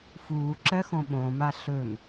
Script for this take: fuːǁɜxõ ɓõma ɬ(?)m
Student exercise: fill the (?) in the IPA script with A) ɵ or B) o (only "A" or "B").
A